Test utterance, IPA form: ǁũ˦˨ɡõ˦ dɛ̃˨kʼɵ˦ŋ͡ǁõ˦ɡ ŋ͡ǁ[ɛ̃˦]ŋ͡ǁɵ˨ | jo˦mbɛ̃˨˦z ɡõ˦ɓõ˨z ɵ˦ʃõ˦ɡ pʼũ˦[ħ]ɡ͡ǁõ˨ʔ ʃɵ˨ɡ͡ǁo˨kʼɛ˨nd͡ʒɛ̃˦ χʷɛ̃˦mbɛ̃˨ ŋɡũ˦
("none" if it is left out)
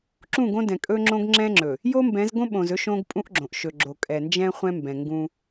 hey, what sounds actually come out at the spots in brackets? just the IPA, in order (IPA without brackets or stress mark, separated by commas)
ɛ̃˦, ʔ